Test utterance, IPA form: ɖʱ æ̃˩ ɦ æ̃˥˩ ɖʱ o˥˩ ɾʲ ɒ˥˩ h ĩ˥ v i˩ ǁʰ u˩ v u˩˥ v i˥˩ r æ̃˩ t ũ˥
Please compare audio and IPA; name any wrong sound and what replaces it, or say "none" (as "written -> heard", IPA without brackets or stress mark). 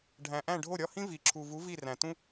ɦ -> ʔ